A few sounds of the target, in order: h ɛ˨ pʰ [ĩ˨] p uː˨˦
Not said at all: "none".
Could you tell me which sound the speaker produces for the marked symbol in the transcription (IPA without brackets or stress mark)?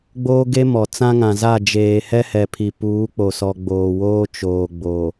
i˨